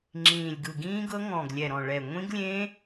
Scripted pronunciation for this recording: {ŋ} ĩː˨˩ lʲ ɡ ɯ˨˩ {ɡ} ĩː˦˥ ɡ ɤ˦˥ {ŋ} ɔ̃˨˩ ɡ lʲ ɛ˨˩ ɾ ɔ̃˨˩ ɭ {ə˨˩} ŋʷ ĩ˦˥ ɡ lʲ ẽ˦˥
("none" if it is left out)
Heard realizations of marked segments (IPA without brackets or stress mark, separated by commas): ŋ͡ǁ, ɡ, ŋ, ɛ˨˩